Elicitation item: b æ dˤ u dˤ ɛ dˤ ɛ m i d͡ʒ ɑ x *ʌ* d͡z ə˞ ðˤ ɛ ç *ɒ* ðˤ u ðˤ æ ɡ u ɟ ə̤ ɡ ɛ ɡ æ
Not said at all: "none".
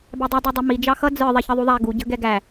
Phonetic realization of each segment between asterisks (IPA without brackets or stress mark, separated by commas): ʌ, ʌ